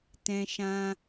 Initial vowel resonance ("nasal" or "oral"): nasal